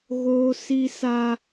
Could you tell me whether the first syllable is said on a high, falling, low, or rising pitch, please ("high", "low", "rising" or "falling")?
high